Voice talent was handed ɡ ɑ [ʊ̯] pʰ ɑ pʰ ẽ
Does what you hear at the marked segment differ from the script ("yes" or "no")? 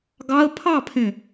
yes